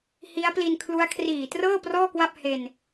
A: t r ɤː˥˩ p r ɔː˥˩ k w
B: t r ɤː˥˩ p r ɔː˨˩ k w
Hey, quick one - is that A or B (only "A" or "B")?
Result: A